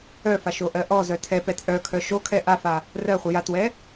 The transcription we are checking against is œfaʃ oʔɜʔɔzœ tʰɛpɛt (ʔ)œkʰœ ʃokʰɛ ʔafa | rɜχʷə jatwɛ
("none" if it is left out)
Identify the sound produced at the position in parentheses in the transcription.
ʔ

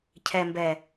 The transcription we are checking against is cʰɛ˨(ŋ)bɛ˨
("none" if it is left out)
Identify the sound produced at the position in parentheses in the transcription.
m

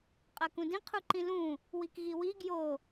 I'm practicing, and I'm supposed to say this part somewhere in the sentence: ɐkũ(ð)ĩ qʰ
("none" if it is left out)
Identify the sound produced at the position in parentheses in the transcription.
d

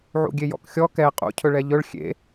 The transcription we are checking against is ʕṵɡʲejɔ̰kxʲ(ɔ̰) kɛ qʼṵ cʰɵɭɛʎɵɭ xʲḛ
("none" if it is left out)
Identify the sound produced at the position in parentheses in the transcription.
ɔ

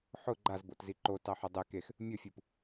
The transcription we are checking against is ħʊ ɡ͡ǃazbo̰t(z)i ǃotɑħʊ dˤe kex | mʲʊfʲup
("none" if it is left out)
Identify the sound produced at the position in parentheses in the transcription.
z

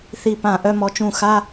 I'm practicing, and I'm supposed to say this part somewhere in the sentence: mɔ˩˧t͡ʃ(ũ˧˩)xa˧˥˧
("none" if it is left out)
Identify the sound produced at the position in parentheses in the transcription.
ũ˧˩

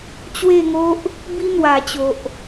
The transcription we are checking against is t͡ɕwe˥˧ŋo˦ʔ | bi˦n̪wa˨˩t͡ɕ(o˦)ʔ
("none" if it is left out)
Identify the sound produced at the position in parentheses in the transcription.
o˨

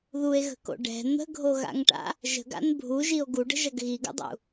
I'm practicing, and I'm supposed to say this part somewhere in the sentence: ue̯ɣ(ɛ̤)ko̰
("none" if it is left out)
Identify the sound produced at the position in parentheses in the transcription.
ə̤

